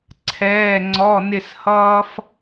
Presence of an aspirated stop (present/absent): present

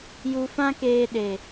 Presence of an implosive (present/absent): present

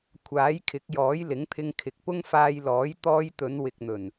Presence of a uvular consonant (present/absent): absent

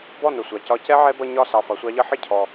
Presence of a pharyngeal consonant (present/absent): present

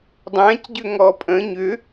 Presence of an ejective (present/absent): present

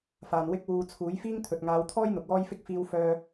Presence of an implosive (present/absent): absent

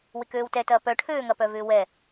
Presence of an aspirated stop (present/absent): present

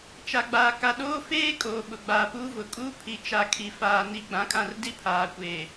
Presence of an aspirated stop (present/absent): present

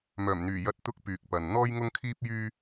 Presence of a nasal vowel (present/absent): absent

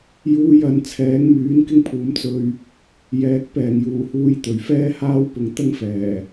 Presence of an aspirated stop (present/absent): present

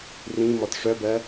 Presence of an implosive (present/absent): absent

